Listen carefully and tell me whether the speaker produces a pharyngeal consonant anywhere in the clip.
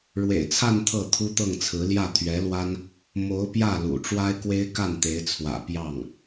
no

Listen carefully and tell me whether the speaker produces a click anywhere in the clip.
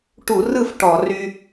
no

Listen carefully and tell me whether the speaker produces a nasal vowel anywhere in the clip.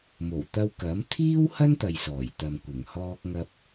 no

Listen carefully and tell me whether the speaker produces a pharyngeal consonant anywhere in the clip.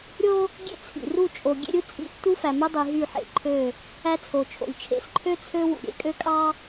yes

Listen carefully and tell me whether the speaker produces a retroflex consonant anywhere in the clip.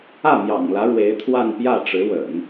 yes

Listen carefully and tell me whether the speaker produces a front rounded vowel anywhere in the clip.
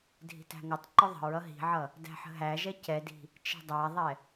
no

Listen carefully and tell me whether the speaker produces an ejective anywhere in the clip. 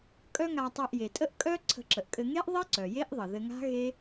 yes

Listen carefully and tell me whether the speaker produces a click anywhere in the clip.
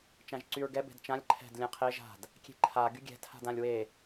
yes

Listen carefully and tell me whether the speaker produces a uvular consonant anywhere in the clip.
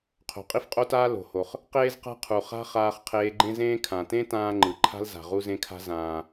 yes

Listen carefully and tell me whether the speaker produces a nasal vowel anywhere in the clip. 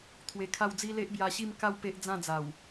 yes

